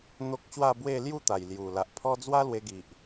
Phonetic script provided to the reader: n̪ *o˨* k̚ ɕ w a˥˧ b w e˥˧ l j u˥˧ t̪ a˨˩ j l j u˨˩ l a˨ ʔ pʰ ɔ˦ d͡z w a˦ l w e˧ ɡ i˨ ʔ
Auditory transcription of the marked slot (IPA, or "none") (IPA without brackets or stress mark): o˦